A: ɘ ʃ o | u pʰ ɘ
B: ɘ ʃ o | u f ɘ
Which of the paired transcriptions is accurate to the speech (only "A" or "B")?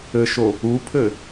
A